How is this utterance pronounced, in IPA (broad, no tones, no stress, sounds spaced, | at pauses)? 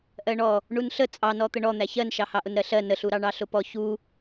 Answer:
ʔ ɜ ɳ ɔ | ɳ u n ɬ ə t͡sʼ ɑ n ɔ t̪ ə ɳ ɔ n̪ æ ç ɜ n ʃ ɑ h ɑ ʔ ʊ n ɾ ɜ ɬ ɜ n ə ɬ u ɾ ɑ ɳ ɑ ɬ ʊ p ɔ ç u